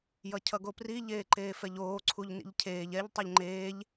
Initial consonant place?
palatal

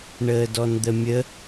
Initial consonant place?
retroflex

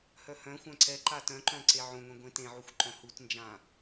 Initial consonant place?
glottal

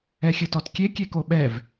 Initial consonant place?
velar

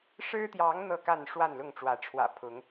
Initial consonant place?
retroflex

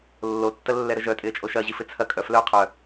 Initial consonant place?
alveolar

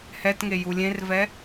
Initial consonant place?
glottal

